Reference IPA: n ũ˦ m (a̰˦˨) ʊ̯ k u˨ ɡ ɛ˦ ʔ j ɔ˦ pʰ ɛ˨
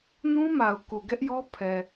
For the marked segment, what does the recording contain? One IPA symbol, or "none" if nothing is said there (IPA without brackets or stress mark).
a˨